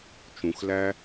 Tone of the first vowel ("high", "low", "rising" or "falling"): low